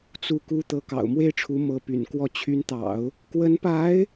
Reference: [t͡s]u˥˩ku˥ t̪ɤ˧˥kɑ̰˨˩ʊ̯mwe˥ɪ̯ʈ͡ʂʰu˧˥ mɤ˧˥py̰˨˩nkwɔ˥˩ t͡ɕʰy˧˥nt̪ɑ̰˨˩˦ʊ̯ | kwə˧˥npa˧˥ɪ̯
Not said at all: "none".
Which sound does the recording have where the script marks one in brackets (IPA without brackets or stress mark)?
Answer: t͡s